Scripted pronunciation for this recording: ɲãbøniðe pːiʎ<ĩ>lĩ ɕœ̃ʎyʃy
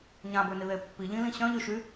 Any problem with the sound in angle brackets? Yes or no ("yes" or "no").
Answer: no